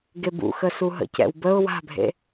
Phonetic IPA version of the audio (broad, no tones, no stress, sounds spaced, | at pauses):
ɡ e b ṵ x ə s u ɦ ə̰ c ɛ̰ w b ə ʊ̯ w a̤ bʱ ḛ